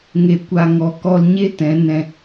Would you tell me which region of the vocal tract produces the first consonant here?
velum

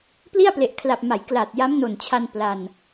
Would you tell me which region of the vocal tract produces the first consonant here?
lips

